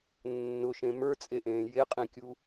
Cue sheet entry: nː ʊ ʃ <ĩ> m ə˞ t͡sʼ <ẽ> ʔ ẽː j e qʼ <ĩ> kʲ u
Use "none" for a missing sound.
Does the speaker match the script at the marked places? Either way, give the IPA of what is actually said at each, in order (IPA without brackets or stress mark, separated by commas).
ẽ, e, ĩ